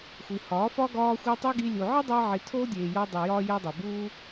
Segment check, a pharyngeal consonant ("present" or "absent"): present